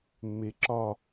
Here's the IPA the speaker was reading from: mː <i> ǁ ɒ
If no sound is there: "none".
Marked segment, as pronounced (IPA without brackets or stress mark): e